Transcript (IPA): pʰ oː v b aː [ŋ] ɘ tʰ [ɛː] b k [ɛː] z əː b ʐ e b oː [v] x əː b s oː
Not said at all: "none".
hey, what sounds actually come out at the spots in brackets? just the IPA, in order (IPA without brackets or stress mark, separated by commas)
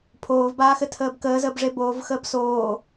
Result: x, əː, əː, v